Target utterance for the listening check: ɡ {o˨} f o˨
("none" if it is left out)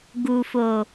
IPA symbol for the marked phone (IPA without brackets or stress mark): u˨